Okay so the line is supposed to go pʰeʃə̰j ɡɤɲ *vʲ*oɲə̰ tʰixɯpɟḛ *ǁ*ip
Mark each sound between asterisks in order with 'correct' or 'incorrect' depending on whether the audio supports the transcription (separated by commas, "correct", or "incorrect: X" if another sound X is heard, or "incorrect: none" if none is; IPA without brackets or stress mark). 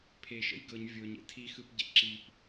correct, correct